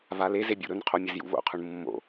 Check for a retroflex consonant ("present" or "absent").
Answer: present